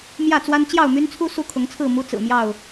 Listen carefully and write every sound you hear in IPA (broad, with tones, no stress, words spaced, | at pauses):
mjä˥˨t͡swa˦n t͡ɕjɑ˥˨ʊ̯my˦nt͡sʰu˦ su˦kʰʊ˨˦ŋt͡sʰɹ̩˥˨ mu˦t͡sɹ̩˨˩mjɑ˥˨ʊ̯